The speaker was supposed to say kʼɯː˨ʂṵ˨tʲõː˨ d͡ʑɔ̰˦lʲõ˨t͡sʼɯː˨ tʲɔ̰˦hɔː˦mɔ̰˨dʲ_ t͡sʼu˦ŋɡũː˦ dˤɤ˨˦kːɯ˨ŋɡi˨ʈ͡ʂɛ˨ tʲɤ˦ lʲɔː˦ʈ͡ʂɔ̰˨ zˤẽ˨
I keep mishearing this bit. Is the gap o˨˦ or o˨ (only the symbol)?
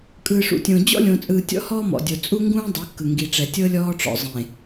o˨